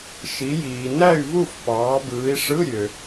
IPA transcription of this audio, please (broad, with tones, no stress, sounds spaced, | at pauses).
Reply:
ʃ i˨˦ j iː˨ n æ˥˨ y̯ v u˥˨ f p ɑː˨˦ b ɯː˨˦ i̯ ʂ ɯ˧˥˧ ɾʲ ø˨